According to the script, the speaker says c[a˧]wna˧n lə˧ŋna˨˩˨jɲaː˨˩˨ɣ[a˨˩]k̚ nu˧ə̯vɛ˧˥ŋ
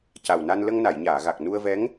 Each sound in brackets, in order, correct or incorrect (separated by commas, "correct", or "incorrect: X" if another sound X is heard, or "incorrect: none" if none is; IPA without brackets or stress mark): incorrect: a˨˩, correct